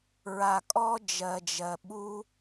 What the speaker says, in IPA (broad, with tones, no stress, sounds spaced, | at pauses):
ɹ a˨ kʼ ɔ˦ d͡ʒ ɜ˨ d͡ʒ ɜ˨ ɓ u˦